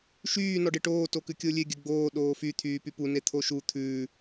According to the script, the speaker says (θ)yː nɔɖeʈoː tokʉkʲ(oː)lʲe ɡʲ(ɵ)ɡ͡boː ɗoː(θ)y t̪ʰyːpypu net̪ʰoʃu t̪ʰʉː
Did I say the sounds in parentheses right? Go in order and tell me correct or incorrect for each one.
incorrect, incorrect, correct, incorrect

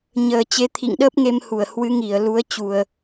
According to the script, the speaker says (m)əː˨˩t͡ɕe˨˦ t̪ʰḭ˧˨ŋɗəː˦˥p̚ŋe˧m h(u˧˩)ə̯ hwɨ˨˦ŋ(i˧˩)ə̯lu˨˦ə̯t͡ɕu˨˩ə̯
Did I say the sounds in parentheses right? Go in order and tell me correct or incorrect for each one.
incorrect, correct, correct

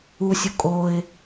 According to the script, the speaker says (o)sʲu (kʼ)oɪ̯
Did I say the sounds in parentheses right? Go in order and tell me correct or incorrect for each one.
incorrect, correct

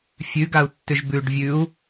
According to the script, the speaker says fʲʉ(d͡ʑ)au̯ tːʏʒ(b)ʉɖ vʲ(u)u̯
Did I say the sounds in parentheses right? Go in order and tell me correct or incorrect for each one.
incorrect, correct, incorrect

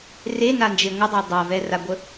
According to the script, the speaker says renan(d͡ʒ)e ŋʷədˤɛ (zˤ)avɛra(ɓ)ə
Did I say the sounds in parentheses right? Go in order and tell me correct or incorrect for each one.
correct, incorrect, incorrect

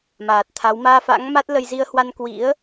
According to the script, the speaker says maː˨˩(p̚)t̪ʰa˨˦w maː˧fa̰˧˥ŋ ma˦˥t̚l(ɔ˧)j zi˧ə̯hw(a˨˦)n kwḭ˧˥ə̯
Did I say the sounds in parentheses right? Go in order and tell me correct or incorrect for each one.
incorrect, incorrect, incorrect

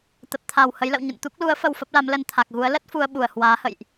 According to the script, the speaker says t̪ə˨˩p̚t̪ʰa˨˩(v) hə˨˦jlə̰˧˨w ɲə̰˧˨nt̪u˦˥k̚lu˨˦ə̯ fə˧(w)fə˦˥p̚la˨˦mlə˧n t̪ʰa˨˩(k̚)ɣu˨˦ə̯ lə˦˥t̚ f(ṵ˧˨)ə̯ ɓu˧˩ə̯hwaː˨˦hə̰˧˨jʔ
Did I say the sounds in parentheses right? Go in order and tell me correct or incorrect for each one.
incorrect, correct, correct, incorrect

